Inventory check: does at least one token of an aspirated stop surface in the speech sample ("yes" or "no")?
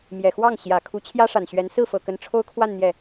yes